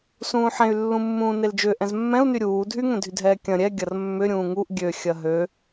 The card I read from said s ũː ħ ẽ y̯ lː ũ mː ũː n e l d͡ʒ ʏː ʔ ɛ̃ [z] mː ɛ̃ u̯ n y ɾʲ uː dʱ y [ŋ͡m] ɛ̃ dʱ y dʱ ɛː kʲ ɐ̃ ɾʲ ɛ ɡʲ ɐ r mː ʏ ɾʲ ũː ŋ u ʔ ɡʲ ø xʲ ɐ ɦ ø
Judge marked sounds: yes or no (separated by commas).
yes, no